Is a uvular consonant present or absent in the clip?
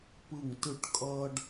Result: absent